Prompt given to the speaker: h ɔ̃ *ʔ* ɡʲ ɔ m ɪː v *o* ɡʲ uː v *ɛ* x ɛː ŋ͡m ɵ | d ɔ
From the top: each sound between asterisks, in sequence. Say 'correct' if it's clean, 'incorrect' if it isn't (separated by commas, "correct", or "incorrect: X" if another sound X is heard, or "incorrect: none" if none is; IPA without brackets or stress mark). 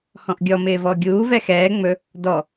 correct, incorrect: ɔ, correct